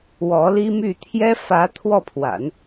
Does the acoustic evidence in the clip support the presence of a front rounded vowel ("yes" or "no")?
yes